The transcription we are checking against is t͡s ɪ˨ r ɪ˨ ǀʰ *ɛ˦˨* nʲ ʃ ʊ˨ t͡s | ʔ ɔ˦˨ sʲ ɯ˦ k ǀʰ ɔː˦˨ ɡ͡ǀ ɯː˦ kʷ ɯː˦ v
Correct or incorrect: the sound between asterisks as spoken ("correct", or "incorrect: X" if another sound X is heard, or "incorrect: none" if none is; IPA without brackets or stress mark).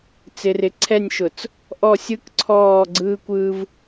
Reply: correct